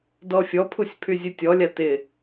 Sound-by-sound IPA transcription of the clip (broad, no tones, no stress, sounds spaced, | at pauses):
d ɔ fʲ ɔ pʰ u sʲ pʰ y zʲ ɨ tʲ ɔ lʲ a t ɪ